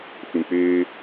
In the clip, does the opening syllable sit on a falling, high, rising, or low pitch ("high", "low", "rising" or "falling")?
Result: low